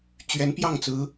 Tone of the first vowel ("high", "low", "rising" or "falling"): rising